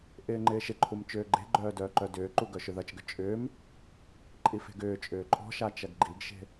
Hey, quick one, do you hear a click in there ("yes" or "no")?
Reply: yes